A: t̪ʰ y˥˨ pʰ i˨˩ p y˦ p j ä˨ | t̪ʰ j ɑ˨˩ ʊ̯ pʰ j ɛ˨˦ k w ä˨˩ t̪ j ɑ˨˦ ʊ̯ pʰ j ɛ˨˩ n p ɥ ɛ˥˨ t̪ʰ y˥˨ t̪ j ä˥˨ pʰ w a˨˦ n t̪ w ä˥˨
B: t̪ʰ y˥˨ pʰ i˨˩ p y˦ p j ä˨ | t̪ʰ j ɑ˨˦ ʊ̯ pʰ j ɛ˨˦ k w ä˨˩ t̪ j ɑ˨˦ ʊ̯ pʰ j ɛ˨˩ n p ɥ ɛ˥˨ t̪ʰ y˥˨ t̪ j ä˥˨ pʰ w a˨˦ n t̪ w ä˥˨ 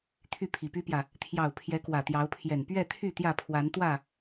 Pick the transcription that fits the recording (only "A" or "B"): A